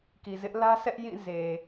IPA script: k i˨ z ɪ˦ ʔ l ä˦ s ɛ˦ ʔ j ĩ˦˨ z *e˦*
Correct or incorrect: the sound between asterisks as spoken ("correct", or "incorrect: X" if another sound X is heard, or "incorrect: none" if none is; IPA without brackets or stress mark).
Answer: incorrect: e˨